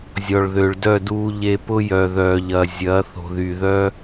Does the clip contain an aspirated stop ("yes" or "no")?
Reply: no